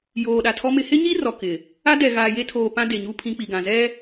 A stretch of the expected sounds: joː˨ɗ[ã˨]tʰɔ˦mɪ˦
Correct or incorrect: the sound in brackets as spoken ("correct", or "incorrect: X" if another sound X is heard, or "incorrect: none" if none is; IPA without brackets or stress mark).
incorrect: a˨